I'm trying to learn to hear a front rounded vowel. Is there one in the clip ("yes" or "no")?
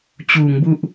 no